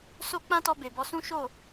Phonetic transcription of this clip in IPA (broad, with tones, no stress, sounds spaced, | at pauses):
s o˦ k͡p ã˦ t ɔ˧ b e˨ b ɔ˧ s ũ˦ ʃ o˦˨